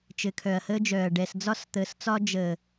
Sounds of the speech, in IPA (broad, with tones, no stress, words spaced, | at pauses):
t͡ʃɘ˨kʰœ˨ɐ̯həː˧d͡ʒœː˨ɐ̯ ɖɛ˨sd͡zɒ˧st̪əː˨st͡sɒː˧ d͡ʒəː˨